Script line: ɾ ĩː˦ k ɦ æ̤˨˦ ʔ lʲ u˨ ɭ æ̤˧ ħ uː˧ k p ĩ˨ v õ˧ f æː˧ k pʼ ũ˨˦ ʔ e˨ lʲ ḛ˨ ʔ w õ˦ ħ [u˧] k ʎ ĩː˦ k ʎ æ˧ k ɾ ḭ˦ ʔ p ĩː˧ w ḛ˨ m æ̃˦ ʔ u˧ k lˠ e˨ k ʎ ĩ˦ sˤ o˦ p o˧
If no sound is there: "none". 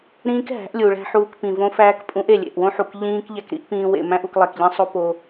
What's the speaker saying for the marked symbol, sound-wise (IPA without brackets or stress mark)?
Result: u˨